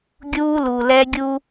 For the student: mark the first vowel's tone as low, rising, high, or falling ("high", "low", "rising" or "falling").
high